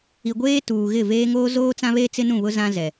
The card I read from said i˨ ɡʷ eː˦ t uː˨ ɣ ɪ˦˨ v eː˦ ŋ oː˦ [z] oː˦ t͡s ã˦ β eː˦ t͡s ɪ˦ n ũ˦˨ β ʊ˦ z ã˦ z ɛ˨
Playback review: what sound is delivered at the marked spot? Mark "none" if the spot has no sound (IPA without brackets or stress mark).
z